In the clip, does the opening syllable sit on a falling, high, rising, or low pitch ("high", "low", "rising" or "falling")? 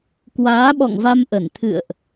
rising